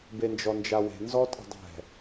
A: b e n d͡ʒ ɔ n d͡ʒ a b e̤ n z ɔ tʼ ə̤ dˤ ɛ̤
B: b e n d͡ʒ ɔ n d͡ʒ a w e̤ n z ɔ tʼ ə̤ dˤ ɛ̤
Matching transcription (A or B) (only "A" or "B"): B